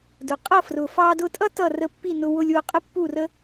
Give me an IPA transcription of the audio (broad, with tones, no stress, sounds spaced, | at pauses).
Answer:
d ʊ˩ qʼ ʌ˥˩ f r ʊ˩ f ɑ˧ d ʊ˧ tʼ ʌ˥ t ʌ˥˩ r ə˥˩ pː i˥˩ n ʊ˧ w ʊ˧ lʲ w ʊ˧ qʼ ə˥ pː u˥˩ r ə˥